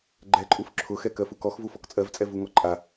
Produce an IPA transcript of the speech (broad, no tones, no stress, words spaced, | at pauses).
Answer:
ɡ͡ǃɛǃʼuf ǁʰʊxɛ kɜfukɔx vufɔkt͡sʼɜvt͡sʼɛ vuŋɔǃʼa